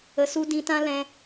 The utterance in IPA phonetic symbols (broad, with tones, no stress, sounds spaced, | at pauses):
ə˧ s u˦ d ĩ˧ t ã˦ l ɛ̃˧